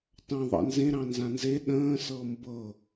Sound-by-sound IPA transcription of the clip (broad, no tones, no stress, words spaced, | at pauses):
tɑ̃ ðˤɑ̰nzẽ ɾɑ̃nzãnze ɗə̃ː sɤmbɤ